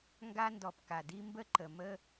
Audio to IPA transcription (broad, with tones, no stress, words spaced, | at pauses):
ŋɡa˦ndɔ˨p ka˨di˦mbə˦ ǃə˨mə˦